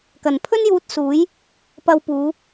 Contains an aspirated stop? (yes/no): yes